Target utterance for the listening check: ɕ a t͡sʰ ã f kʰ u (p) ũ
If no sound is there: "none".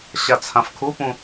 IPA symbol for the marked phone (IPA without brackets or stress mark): p